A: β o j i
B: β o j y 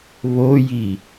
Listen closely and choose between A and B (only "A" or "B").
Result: A